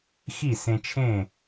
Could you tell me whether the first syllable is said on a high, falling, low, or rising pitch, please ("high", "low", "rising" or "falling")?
falling